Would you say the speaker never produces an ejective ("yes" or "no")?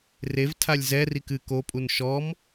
no